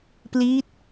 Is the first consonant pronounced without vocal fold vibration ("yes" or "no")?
yes